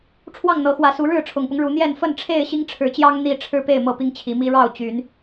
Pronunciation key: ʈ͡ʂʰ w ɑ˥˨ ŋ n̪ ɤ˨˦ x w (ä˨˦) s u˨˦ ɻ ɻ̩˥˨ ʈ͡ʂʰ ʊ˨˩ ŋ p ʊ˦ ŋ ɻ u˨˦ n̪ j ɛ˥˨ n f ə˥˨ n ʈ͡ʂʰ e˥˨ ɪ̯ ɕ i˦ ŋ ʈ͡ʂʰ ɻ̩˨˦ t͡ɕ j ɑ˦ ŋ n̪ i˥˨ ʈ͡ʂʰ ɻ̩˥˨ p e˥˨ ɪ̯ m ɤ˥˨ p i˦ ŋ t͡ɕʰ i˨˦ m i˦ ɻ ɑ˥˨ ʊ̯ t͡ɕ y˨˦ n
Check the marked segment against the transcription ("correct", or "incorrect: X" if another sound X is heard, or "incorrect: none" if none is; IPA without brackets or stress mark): correct